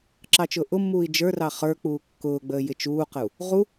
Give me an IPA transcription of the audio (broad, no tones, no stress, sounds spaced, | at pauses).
ǁ ɑ t͡ʃ ʊː ʔ ʊ mː uː i̯ d͡ʒ ə˞ r ɑ χ ə˞ k͡p uː kː ʊː ɡ͡b əː j ɪ t͡ʃ uː q ə u̯ | ʁ u